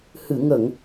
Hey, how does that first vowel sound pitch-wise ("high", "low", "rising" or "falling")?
low